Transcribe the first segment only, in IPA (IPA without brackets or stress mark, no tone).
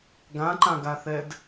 ɡ